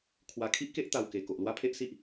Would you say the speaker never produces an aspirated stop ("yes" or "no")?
no